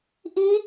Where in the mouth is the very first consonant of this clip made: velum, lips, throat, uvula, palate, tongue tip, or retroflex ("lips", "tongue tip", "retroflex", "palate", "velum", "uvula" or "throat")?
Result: throat